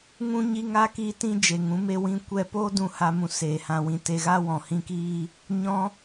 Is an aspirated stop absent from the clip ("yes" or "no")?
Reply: yes